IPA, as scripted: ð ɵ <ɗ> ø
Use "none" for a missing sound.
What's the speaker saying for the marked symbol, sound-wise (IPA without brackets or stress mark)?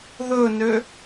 n